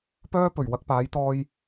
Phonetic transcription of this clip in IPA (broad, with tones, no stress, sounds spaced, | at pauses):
p œː˥ p ɵ˨˩ ɥ w ɐ˧ k̚ p aː˨˥ j t̪ ɔː˧ j